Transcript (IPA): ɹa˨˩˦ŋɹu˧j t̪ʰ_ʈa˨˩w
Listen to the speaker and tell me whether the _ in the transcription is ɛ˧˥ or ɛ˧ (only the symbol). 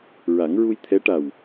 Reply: ɛ˧˥